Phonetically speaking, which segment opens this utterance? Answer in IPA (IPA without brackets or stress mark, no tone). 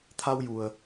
t̪ʰ